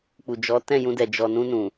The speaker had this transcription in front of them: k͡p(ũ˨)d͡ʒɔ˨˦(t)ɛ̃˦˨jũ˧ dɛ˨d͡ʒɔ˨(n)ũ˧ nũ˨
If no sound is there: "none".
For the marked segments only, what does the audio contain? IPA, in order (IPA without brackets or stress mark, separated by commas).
u˨, t, n